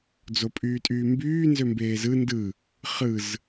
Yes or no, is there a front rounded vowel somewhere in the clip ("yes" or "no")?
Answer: yes